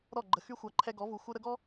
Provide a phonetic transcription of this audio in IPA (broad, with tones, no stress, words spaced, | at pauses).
ɾɔ˦˨ɡ͡ǃə˨ xy˦xʷa˨ ǃʰɛ˧ɡɔ˨˦vu˨ xʷə˧ɾə˧ɡɔ˦